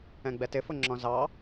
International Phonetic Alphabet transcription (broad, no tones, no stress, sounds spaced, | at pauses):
ɛ̃ ɡ͡b ɛ t ɪ f ʊ ŋ͡ǁ ɔ̃ z ɑ